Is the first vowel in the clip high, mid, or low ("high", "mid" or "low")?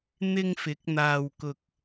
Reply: high